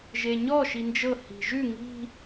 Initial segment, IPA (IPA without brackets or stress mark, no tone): ʒ